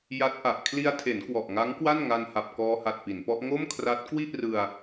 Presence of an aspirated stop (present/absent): present